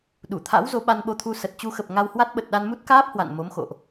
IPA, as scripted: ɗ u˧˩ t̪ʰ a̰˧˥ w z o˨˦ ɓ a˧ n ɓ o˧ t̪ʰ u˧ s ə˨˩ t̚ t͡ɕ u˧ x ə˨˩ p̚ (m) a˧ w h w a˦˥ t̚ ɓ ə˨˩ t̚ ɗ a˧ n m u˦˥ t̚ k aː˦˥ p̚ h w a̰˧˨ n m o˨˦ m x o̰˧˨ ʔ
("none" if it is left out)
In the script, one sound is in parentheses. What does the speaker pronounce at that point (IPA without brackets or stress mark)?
ŋ